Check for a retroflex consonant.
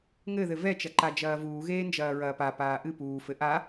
absent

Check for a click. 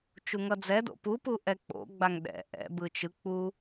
absent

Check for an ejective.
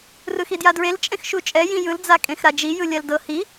present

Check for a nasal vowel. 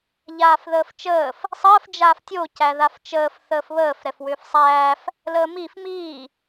absent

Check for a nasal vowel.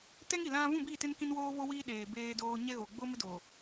present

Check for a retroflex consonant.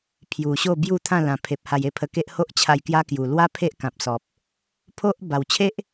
absent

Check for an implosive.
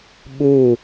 present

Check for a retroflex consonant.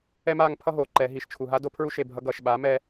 absent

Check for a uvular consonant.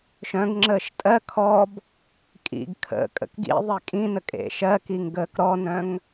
absent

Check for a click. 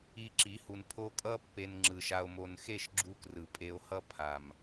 present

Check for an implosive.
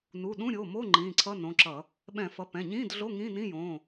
present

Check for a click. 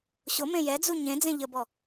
absent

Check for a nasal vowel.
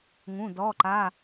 present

